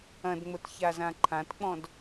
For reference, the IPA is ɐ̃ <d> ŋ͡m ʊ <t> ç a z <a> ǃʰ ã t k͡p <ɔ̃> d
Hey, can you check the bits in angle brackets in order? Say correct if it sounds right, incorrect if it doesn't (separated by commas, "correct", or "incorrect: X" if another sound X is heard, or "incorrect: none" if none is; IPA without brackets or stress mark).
correct, correct, incorrect: ã, correct